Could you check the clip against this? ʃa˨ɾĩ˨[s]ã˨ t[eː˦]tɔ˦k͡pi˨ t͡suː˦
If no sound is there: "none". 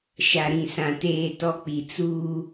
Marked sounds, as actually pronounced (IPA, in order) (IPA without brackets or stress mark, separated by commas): s, eː˦